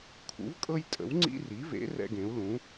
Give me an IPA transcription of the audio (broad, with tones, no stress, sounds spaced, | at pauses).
kʰ ṵ˩˥ v kʼ ɤ˦ j tʼ ə̰˩˥ w ŋ͡ǀ ḭ˦ r i˩˥ v ḛ˩˥ r ɛ̰˦ ɡ ẽ˩˥ u̯ l ũ˩˥